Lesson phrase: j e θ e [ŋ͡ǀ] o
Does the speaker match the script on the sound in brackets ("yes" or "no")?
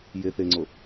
yes